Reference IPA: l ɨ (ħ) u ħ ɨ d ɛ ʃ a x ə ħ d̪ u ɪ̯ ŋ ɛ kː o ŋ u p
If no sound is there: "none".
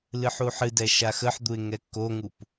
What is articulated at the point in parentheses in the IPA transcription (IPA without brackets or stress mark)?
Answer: ħ